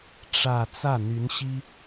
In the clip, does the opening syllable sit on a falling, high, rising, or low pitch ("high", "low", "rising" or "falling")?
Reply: falling